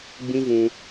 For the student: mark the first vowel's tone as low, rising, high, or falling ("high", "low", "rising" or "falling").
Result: high